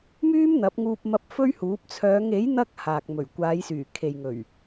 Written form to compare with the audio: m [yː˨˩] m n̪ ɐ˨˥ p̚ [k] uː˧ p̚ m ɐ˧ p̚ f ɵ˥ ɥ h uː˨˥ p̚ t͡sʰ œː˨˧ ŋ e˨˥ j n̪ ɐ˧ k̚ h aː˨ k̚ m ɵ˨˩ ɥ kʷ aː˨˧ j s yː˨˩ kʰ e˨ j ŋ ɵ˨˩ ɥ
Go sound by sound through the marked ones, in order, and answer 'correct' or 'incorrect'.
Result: incorrect: yː˥, incorrect: ŋ

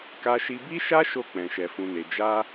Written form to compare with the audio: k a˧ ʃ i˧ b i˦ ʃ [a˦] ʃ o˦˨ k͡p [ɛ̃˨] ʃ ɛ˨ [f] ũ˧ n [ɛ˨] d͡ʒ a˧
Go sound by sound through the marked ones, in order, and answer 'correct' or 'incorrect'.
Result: correct, correct, correct, incorrect: e˨

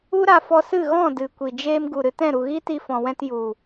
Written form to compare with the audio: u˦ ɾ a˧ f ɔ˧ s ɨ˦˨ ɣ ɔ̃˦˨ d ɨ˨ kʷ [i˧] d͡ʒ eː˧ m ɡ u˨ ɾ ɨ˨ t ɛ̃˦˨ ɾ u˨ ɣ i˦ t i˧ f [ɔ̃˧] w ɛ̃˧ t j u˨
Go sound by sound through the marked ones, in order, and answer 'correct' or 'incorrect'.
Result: incorrect: i˨, incorrect: ɔ̃˨

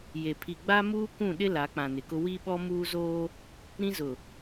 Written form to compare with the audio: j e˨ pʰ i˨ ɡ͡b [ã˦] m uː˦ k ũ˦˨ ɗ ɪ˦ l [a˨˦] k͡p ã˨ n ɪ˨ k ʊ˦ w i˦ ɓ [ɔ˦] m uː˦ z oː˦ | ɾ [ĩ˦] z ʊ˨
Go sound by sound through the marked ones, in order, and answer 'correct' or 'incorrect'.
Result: incorrect: a˦, correct, correct, correct

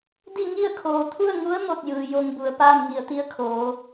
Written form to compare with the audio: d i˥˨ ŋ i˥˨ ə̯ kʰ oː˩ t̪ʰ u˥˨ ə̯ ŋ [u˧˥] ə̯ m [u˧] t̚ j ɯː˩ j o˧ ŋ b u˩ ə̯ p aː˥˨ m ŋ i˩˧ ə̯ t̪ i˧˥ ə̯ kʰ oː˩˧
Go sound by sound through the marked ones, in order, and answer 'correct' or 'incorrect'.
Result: correct, incorrect: o˧

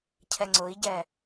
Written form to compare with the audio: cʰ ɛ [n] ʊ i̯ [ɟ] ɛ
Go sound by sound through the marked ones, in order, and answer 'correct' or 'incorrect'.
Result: incorrect: ŋ͡ǀ, correct

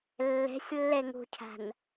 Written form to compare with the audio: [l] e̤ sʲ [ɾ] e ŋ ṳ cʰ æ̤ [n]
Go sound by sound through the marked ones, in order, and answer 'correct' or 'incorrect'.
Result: incorrect: lː, incorrect: lː, correct

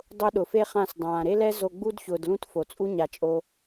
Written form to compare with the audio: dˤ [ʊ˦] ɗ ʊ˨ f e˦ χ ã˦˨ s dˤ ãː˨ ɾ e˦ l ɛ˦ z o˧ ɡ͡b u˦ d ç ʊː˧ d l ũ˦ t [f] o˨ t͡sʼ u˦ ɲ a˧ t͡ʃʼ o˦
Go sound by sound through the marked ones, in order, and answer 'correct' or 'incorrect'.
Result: correct, correct

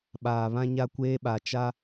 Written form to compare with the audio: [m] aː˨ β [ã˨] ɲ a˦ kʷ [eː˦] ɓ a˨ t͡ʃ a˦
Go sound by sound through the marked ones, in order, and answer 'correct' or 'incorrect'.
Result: incorrect: ɓ, incorrect: ã˦, correct

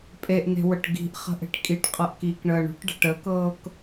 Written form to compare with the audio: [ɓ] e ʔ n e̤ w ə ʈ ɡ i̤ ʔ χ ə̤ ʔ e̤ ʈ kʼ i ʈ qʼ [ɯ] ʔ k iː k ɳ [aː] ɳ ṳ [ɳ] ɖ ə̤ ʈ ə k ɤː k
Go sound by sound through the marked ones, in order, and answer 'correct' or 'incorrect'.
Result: incorrect: pʼ, incorrect: ɤ, incorrect: əː, incorrect: ʈ

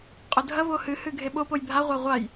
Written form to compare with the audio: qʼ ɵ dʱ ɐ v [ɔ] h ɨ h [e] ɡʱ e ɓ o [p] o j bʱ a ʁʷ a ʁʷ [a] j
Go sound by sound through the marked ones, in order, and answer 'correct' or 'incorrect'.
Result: incorrect: o, incorrect: ɨ, correct, correct

